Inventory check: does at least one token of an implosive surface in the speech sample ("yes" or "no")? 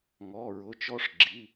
no